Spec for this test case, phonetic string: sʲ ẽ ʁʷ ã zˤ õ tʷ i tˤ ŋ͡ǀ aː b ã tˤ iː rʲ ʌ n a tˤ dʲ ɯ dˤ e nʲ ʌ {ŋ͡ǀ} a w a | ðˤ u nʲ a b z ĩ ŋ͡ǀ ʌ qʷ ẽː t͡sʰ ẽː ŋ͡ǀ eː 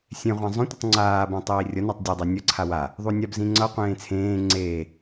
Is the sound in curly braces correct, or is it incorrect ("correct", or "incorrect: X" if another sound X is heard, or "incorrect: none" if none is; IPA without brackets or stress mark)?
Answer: incorrect: ǀʰ